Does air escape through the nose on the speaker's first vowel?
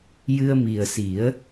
no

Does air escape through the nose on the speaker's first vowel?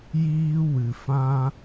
no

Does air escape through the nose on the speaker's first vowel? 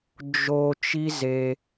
no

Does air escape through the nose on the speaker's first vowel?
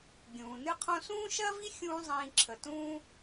yes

